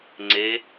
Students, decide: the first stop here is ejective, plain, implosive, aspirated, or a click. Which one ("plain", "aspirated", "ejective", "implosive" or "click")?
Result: click